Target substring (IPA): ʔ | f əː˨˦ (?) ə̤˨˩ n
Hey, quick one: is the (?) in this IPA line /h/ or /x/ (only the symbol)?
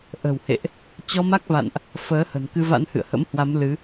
h